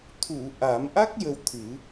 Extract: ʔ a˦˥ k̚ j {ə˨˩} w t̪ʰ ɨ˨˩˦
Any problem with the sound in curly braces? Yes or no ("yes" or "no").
yes